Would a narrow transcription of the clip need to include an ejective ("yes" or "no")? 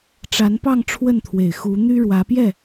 no